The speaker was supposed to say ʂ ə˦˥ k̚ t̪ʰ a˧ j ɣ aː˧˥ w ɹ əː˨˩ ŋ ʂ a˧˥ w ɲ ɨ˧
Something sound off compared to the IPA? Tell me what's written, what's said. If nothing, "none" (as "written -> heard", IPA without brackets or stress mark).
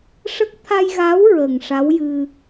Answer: ɲ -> j